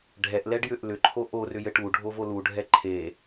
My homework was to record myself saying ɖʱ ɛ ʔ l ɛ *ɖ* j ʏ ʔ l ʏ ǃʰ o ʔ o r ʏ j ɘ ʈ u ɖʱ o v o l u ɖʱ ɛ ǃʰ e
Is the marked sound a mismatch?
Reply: no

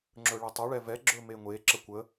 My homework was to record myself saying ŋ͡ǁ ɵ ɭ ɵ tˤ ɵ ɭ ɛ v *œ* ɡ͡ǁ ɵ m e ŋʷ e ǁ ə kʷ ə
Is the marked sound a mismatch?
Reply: yes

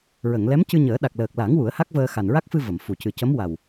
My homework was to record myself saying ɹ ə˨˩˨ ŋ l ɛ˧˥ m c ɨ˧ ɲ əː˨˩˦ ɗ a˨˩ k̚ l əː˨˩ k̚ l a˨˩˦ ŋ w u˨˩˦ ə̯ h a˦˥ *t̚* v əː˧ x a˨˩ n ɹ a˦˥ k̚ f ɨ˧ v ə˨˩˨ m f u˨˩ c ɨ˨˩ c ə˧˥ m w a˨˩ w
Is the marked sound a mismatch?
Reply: yes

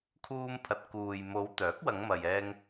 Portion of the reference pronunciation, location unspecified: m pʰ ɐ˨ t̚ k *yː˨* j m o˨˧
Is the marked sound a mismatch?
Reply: yes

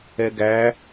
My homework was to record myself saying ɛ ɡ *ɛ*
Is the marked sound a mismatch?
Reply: yes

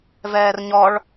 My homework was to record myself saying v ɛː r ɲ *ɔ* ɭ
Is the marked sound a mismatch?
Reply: no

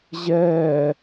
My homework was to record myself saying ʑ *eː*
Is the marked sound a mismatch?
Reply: yes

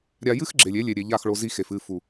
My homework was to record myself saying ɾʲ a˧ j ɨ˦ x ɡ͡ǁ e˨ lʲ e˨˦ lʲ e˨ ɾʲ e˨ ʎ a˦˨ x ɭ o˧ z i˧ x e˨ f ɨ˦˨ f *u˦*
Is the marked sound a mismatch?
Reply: yes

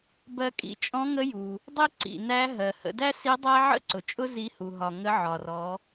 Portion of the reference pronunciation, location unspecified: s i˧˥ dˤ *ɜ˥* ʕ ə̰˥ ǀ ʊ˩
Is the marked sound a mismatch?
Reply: yes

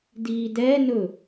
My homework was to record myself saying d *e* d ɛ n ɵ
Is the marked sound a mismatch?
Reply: yes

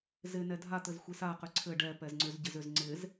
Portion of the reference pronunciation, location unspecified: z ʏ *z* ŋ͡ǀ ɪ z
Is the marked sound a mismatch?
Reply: no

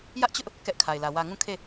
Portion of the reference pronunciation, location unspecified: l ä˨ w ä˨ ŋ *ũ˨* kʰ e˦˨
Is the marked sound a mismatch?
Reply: yes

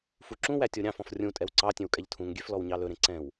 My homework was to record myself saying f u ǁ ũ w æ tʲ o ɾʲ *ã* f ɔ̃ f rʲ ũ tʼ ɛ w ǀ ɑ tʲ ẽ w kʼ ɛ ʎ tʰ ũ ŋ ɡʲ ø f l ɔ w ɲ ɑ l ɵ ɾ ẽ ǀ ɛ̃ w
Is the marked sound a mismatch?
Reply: yes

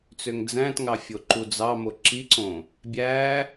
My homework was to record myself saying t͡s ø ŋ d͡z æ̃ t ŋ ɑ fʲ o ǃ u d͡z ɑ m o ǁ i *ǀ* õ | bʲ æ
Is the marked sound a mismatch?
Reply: no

